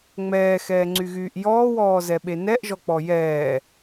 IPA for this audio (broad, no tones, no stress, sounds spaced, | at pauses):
ŋ͡m ɛː x ɛː ŋ͡ǀ y ɣ yː ʔ j ɔː w ɔː z ɛ ɓ e n ɛ ʔ ʒ ɔ k͡p ɔ j ɛː